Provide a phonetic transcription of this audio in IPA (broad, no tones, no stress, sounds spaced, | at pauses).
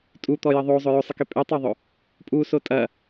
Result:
tʼ u t̪ ɔ j ɐ ðˤ o zˤ ɵ j ɵ sˤ ə k e pʼ e tˤ œ ðˤ ɵ | pʼ u s o tʼ ɐ